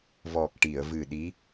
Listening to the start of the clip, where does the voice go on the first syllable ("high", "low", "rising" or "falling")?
low